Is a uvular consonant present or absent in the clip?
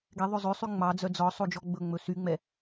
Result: absent